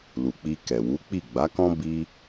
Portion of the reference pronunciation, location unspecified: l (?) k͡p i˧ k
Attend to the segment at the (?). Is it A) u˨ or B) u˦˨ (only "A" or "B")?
A